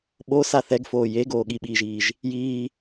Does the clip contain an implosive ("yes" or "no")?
yes